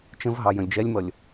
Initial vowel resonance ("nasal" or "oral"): nasal